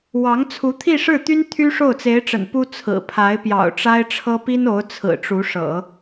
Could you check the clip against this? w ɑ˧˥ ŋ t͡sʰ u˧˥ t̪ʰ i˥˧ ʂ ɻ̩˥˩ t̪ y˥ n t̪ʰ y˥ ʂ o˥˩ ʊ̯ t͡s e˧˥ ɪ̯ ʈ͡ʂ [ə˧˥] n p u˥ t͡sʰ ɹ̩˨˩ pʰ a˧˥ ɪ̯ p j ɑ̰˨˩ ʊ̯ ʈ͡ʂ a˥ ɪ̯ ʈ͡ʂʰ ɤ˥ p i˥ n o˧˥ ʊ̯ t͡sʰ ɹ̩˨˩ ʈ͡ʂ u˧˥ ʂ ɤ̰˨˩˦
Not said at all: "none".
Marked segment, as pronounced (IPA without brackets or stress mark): ə̰˨˩